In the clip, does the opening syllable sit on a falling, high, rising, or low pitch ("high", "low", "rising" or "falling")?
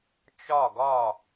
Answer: falling